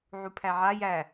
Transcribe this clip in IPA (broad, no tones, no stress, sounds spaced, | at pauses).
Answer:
ʕ u pʰ æ ʕ a j æ